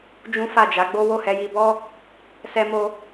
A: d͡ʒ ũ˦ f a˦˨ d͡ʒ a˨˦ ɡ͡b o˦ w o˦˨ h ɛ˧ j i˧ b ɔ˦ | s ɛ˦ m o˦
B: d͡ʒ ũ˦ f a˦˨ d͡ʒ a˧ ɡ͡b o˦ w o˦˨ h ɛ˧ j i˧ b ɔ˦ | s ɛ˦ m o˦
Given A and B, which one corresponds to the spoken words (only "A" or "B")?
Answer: A